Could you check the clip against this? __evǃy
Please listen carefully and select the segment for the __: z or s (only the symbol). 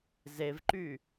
z